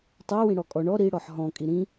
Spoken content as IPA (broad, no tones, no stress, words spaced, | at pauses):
tˤɜ wĩɽɔkʼɔ ɳɔ ɾi ɽɔħɦɔ̃ kʼiɾĩ